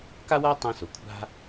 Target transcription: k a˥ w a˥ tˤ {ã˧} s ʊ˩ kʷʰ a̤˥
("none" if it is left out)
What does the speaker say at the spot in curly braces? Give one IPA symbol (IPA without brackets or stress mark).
ã˧